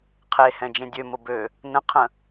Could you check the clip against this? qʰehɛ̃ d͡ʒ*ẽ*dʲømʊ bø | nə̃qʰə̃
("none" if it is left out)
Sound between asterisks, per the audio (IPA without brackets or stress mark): ẽ